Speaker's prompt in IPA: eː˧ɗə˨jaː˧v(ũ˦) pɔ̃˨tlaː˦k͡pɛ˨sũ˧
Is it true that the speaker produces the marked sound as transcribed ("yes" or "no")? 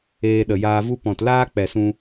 no